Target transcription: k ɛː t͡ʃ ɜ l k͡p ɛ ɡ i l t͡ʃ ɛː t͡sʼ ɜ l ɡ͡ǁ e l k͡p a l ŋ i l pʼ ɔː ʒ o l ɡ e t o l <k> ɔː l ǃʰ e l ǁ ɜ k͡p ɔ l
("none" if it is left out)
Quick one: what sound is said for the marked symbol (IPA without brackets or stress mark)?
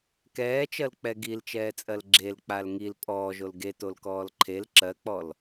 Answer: k